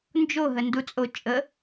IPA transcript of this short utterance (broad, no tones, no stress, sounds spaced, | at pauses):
n d͡ʒ o ɦ ə n d u t͡sʼ o t͡ʃʼ ə